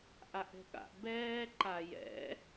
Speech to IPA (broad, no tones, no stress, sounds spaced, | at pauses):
ʔ a ʔ ɛ̤ ɠ a̰ ʔ b ɛː ǃ a j ɛ̰